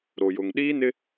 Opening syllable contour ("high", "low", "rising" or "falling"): low